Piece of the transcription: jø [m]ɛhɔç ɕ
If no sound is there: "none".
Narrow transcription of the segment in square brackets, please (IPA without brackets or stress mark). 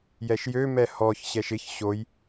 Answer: m